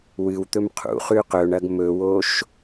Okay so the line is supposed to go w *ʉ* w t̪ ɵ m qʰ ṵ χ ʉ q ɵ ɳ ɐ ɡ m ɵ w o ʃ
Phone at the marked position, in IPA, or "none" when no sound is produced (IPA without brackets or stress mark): ɨ